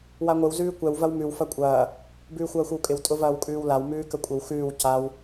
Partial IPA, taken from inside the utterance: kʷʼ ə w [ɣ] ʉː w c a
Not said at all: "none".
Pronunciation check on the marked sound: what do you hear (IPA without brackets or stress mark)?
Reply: x